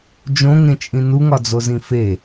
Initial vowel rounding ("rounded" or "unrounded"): rounded